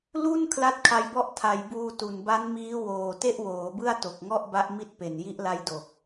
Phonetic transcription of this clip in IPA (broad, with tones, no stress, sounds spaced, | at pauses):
l u˥˩ n kʰ l a˥˩ t̚ kʰ a˧ j b ɔ˥˩ ʔ tʰ a˩˦ j b uː˧ t u˨˩ n b a˦˥ n m iː˦˥ w oː˨˩ t e˥˩ ʔ w oː˩˦ b ɯ˥˩ a̯ t o˨˩ k̚ ŋ ɔ˥˩ ʔ b a˦˥ ʔ m i˦˥ t̚ p e˨˩ n j i˦˥ ʔ l a˦˥ j d o˨˩ k̚